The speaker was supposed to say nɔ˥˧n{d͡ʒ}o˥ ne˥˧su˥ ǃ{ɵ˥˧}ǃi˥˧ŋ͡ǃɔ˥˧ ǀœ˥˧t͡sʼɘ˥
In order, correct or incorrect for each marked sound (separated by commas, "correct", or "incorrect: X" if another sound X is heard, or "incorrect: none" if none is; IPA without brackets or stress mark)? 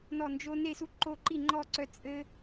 correct, incorrect: o˥˧